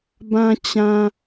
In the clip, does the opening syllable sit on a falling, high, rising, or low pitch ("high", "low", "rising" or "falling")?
high